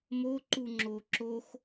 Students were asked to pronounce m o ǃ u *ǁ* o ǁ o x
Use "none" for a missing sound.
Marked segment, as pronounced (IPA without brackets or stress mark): ŋ͡ǁ